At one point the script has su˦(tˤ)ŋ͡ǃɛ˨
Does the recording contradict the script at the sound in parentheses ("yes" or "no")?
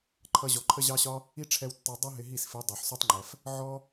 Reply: no